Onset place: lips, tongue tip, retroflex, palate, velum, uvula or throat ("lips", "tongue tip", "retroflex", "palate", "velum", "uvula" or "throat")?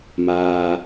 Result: lips